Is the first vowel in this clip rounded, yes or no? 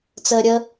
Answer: no